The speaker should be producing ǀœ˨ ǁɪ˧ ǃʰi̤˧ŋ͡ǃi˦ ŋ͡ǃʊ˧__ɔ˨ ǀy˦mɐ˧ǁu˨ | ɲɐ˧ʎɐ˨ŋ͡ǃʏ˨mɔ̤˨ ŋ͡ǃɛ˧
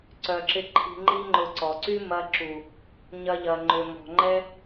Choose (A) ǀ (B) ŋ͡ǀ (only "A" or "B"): A